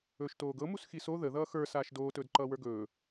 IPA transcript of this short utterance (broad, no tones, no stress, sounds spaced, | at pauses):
ɵː ʃ t oː ɡ ɤ m u s x i s o ð ə ð ʌː x ə˞ s aː ʃ d oː t ɵː d ǃ ʌː w ə˞ ɡ ɵː